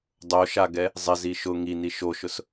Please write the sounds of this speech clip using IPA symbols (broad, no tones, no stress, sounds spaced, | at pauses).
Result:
dˤ o ʃ a ɡ ɛ | zˤ ɪ z i ʃ ʊ ŋ i n i ʃ o ʃ ʊ s